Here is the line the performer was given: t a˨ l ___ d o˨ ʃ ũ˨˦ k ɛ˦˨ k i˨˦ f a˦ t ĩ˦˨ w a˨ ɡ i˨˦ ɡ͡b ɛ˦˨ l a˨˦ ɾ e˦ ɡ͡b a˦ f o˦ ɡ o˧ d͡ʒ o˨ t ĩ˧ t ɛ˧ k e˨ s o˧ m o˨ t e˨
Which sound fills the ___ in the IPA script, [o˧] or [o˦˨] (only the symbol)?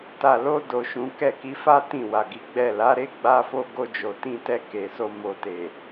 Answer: o˧